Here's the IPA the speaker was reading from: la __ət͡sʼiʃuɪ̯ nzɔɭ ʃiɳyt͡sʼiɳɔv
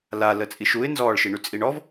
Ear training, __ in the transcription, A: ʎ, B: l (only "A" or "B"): B